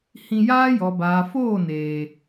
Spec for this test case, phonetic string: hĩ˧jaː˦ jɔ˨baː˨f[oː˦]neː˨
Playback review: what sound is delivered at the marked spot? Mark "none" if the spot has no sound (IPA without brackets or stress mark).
oː˦˨